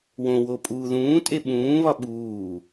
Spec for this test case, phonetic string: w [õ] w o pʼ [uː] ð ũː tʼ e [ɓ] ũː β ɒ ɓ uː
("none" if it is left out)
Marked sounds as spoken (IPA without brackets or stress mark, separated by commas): õ, uː, ɓ